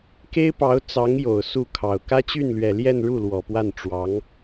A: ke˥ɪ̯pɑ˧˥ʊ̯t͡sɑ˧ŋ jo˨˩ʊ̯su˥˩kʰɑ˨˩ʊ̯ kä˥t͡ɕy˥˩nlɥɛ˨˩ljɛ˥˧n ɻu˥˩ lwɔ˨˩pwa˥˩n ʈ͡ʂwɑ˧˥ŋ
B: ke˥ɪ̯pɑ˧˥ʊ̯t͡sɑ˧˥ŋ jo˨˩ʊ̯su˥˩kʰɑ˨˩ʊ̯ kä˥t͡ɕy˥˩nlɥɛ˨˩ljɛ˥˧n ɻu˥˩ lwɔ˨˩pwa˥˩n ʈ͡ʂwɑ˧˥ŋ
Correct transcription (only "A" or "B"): B